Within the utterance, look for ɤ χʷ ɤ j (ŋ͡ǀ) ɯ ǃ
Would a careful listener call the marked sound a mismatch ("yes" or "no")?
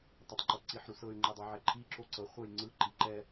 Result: no